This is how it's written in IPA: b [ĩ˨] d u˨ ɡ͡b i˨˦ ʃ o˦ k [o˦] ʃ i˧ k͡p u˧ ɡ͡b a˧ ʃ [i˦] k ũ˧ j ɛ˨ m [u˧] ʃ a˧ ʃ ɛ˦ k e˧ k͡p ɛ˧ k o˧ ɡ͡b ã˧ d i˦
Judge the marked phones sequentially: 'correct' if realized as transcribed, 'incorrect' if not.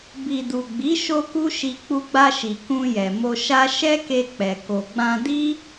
incorrect: i˨, incorrect: u˦, incorrect: i˨, incorrect: o˧

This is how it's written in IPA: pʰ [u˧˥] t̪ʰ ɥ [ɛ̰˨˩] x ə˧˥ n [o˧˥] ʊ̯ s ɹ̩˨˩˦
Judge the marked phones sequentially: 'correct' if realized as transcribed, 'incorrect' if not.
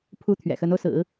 correct, correct, incorrect: o˧

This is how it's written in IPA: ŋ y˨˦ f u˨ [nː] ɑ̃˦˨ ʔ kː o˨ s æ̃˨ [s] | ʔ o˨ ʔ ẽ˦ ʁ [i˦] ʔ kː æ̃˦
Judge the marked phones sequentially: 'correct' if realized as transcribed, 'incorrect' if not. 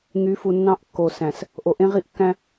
correct, correct, correct

